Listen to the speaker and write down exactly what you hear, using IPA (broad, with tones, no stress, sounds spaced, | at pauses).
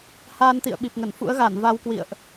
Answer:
h aː˧ n t̪ ḭ˧˨ ə̯ ɓ i˨˩ p̚ ŋ ə˧˩ n f ṵ˧˥ ə̯ ɣ a˧˩ n v a˧ w k w ḭ˧˨ ə̯ ʔ